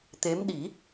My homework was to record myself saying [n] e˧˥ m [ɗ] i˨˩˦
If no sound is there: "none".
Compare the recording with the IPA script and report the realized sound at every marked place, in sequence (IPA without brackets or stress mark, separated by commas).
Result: t̪, ɗ